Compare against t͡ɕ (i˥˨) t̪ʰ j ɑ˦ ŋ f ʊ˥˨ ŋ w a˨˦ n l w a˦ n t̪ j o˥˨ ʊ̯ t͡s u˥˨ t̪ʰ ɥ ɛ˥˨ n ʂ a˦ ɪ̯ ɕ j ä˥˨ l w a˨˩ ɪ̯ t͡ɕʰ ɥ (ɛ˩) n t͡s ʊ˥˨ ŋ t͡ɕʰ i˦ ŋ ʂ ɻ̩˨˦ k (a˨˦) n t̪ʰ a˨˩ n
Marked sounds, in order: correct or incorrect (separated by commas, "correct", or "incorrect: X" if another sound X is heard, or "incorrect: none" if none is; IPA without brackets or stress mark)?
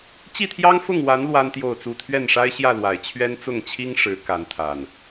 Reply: correct, incorrect: ɛ˦, correct